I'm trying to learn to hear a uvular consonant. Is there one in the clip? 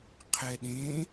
yes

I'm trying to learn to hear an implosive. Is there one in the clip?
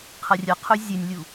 no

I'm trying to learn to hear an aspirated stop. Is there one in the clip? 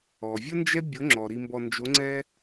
no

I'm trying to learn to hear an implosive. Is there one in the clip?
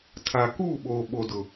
yes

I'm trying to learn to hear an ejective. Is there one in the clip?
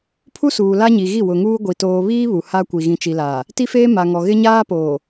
no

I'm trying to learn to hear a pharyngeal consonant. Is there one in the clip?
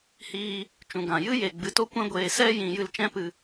no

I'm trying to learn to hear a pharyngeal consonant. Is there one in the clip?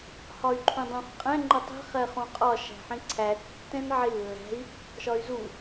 yes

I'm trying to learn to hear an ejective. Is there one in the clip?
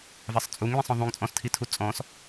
yes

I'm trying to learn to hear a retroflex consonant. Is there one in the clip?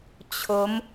no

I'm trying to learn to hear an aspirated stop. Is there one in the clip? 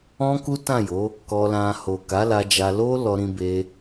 no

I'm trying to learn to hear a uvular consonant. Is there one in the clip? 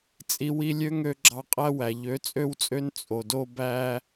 yes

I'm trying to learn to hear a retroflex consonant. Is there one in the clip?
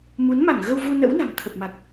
no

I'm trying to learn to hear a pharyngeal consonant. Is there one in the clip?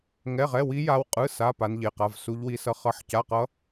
yes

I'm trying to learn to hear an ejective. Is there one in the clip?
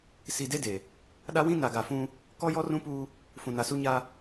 no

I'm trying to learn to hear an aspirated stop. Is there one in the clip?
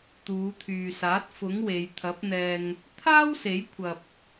yes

